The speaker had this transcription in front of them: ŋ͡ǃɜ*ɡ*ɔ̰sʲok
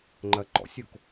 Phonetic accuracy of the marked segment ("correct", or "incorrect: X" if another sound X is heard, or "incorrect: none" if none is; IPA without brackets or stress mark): incorrect: ǃ